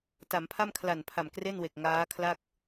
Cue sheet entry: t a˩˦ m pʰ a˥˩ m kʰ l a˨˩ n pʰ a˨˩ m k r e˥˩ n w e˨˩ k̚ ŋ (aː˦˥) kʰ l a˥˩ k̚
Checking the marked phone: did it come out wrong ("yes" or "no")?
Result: no